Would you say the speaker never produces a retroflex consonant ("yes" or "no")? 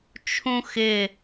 yes